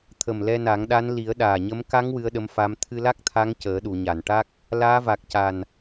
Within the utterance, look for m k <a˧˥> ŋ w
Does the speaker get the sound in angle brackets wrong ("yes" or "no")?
no